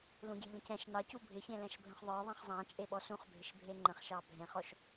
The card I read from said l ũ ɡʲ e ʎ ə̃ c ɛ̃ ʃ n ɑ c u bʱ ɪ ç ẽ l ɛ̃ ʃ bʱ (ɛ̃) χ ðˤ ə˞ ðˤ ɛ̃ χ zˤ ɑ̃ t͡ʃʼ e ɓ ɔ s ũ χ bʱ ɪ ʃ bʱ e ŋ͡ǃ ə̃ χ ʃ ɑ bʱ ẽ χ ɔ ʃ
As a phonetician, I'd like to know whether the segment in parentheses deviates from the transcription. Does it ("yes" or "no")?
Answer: yes